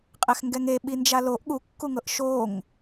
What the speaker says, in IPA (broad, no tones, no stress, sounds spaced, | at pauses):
qʼ ɛ x ŋ ɡ ɛ ŋ e ɓ i n d͡ʒ a l o ʔ ɠ u kː u ŋ ɤ ʔ ʃ o ŋ